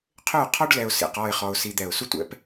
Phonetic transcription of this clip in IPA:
qʰ ʏ˦˨ ʊ̯ qʰ ɔ˦ ɖ l ɛ˨ ʊ̯ s ḭ˨ q ɔ˦˨ ɪ̯ χ ɔ˦ ʊ̯ s i˦ d̪ ɛ˦˨ ʊ̯ s u˦ tʷ ɛ̰˨˦ p

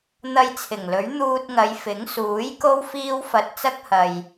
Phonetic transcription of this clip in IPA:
n̪ ɐ˧ j t͡sʰ ɪ˨˩ ŋ l ɵ˨˥ ɥ n̪ uː˧ t̚ ŋ ɐ˨˧ j f ɪ˨˥ ŋ s uː˨˥ j k o˥ w f iː˥ w f ɐ˧ t̚ t͡s ɐ˥ k̚ h ɐ˨ j

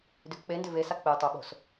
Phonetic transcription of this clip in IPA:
d ʏ k k͡p e n d ʏ v e s a k͡p e tˤ o ɓ o̤ s

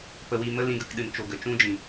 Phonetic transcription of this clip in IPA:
p ə˧ w i˧ m ə˦ l ĩ˧ ɡ ə˧ k ɗ ɨ˨ n t͡ʃ o˨ ɡ ə˨ t͡ʃ ũ˦ d͡ʒ ĩ˨

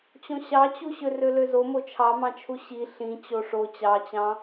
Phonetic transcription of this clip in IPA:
t͡ɕ õ ɕ ɑ t͡ɕ u ɕ ø r ø l ø z o m o t͡ʃʰ ɑ m ɑ̃ t͡ʃʰ u ɕ i ɬ ĩ t͡ɕ o ʂ o t͡ɕ ɑ t͡ɕ ɑ̃

